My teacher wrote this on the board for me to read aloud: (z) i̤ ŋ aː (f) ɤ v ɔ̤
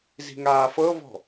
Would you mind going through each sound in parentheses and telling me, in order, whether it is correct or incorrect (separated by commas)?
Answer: correct, correct